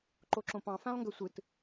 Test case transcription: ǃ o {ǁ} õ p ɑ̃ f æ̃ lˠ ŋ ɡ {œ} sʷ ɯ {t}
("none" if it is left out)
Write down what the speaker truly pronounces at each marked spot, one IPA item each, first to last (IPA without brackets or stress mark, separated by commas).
ǁ, ø, t